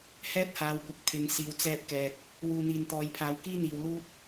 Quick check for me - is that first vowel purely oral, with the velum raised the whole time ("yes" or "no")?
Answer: yes